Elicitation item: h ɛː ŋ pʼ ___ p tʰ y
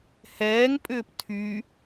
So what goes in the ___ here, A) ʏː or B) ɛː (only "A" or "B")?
A